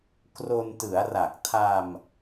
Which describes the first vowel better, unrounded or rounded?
rounded